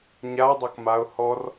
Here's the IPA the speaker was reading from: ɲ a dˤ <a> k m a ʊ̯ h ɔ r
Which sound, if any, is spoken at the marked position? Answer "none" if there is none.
a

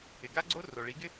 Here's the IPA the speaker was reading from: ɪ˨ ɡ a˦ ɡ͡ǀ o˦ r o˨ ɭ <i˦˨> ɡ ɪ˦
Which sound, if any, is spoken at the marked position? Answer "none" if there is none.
i˨˦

